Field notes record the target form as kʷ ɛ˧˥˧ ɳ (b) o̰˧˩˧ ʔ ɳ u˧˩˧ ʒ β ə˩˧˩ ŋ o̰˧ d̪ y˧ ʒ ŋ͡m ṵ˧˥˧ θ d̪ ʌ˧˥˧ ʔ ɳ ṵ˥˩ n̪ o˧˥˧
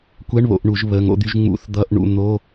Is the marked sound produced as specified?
no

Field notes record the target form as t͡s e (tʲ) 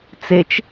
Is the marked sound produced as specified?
no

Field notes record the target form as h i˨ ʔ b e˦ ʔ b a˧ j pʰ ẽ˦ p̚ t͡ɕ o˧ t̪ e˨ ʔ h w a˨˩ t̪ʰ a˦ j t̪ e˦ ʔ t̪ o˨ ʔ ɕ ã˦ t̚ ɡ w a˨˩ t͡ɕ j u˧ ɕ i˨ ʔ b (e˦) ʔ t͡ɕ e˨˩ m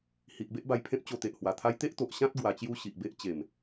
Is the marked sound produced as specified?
yes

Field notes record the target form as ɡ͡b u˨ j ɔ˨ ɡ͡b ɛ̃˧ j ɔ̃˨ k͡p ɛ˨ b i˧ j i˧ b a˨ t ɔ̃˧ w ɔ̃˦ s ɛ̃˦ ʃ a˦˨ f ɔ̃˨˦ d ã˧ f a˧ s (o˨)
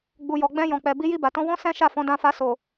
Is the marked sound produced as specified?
yes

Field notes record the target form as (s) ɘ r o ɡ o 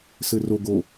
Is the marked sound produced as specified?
yes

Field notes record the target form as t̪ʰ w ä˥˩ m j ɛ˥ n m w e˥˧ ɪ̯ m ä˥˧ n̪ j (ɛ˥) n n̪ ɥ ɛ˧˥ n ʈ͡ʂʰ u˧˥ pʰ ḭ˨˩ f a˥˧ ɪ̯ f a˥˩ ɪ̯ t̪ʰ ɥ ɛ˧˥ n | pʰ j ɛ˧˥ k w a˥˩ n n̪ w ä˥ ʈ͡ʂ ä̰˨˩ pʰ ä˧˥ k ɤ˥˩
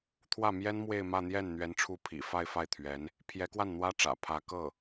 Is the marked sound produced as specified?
no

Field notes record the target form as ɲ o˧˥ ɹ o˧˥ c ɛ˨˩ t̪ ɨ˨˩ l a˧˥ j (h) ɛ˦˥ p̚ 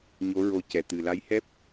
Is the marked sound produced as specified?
yes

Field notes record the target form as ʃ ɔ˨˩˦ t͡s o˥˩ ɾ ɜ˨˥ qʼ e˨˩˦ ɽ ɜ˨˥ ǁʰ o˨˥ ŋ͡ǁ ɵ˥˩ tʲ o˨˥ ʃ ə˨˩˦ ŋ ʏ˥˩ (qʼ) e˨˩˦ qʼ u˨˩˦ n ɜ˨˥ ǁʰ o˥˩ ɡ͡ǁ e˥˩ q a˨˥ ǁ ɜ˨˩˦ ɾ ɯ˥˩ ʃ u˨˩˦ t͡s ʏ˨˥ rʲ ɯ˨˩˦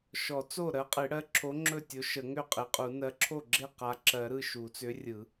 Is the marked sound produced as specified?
yes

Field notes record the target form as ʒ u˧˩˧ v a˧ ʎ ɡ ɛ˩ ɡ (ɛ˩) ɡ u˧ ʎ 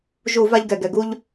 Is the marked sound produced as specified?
yes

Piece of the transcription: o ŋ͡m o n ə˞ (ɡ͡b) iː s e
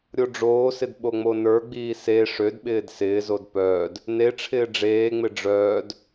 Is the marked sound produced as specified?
yes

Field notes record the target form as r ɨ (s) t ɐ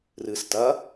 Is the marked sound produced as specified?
yes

